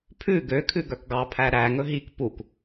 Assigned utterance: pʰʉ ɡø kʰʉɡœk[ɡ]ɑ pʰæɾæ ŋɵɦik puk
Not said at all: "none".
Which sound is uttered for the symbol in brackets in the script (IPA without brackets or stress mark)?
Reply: ɡ